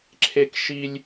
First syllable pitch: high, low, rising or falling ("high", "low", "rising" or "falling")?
high